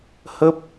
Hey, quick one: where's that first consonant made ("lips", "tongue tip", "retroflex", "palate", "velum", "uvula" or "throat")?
throat